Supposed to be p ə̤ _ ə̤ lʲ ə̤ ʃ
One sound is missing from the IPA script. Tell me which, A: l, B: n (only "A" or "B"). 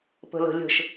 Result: A